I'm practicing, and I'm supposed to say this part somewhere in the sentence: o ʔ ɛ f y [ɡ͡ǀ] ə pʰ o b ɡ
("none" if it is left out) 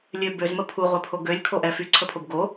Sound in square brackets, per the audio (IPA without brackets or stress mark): ǀʰ